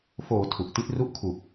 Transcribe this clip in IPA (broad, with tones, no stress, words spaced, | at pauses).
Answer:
foː˩˦ tʰu˨˩ʔti˥˩t̚ ru˦˥ʔkʰu˨˩k̚